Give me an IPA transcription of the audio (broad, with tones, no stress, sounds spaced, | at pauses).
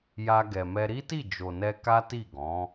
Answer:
j a˧ ɡ ɛ˨ m ɛ˧ ɾ i˦ t i˦˨ d͡ʒ o˨ n ɛ˧ k a˦ t i˦˨ ɡ ɔ̃˨˦